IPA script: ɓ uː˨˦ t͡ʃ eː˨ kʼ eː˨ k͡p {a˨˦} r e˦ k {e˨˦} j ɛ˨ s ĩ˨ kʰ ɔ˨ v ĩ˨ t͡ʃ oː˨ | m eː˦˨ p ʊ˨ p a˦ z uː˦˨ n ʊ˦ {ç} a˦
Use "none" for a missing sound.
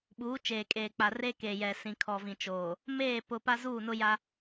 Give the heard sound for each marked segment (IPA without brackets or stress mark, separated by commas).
a˨, e˨, j